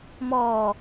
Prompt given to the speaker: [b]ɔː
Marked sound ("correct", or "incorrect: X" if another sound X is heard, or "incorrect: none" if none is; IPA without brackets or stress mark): incorrect: m